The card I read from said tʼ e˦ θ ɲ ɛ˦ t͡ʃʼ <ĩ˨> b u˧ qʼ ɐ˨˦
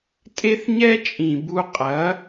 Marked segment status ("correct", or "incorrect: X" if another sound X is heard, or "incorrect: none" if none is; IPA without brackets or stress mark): correct